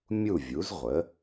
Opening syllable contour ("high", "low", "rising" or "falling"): falling